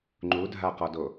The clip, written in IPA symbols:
ŋ͡ǃ u dʱ a q ɔ d o

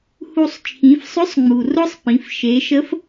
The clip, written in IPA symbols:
h u˧ sˤ t͡ʃʰ ĩ˩˧ f sˤ ʏ˧˥ sˤ ŋ͡m u˩ r ʊ˥ sˤ p ĩ˩˧ f ʃ e˩˧ ʃ ə˧˥ f

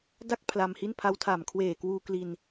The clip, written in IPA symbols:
d a˥˩ k̚ pʰ l a˧ m h i˥˩ n pʰ a˧ w tʰ a˨˩ m kʰ w eː˨˩ k w uː˧ k l i˧ n

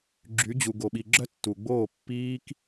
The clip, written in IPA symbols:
ɡ͡ǁ y˨˦ d͡ʑ u˨ ɡ o˨ ɓ i˨ ɡ͡ǁ œ˦ tː u˨ ɡ͡b oː˦˨ pː iː˦ k

